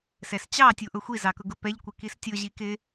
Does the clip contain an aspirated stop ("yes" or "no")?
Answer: no